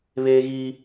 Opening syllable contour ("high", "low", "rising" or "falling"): high